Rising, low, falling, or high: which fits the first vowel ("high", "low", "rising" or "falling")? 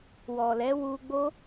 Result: low